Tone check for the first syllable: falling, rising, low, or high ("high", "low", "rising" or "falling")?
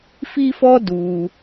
high